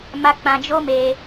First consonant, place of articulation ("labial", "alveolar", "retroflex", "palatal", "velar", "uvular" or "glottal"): labial